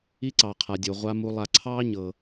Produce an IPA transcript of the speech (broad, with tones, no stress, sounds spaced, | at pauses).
i˥ ǀ ɑ˩ qʰ a˩ dʲ o˩ ʁʷ a˦ m u˨ lˠ a˨ ǀʰ ɑː˥ ɲ ɤ˩